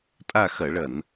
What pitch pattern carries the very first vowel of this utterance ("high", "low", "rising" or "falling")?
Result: falling